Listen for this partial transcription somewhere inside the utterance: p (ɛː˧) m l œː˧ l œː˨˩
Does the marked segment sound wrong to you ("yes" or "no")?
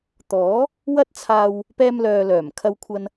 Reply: yes